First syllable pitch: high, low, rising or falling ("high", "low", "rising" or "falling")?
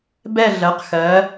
falling